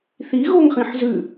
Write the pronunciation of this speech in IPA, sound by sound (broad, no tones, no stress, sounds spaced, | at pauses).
θ i ɣ o ŋ χ ĩ ħ z ʉ